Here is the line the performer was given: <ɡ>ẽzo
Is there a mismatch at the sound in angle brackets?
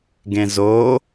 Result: no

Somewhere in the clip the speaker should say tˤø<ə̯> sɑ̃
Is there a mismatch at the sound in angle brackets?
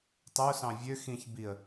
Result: yes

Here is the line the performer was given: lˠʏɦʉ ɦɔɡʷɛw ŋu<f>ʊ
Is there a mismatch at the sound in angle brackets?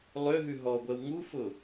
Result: no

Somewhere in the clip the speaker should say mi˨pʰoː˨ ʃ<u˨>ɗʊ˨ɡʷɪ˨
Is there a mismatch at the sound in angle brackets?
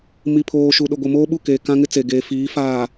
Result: no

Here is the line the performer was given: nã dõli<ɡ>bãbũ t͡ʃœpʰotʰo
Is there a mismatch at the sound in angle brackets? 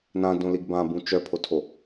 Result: no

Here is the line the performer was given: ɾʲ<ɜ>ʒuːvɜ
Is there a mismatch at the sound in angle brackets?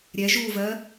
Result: yes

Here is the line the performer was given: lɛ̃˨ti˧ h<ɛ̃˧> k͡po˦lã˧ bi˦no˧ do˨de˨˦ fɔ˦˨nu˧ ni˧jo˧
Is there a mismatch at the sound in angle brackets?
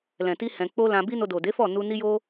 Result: no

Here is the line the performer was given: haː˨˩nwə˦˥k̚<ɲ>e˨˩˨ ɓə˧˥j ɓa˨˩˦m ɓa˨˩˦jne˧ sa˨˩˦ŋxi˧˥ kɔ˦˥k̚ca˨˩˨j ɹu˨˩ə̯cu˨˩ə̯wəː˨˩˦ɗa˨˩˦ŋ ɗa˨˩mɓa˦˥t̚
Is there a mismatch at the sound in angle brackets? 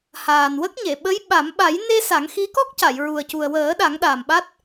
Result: no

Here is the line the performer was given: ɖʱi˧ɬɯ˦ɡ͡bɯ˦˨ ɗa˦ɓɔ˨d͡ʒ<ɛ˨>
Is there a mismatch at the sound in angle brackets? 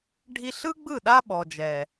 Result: no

